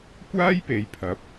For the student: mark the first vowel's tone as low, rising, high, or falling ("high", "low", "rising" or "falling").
high